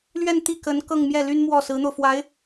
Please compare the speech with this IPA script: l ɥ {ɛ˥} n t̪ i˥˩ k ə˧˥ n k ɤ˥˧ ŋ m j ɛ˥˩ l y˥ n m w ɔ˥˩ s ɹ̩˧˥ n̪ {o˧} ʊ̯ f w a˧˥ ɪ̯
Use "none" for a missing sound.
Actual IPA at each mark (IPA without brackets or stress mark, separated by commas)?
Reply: ɛ˥˧, o˧